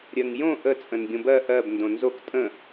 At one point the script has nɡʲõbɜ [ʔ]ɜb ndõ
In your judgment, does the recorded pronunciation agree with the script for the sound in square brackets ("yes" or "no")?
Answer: yes